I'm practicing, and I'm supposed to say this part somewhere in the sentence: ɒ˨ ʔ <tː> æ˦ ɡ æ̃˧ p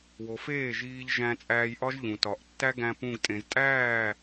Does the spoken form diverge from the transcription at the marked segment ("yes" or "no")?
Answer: no